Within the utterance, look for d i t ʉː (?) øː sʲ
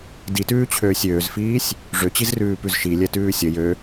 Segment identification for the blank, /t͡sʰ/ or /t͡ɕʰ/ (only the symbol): t͡ɕʰ